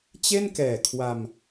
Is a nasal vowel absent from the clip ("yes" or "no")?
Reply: yes